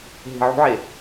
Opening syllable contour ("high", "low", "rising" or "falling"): low